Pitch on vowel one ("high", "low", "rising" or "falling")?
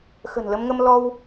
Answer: low